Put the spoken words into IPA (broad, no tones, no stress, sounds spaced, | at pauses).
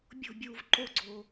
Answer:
bʲ o̤ bʲ uː v ǃ o ɡ͡ǀ oː